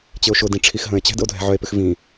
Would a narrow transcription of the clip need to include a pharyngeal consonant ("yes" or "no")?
yes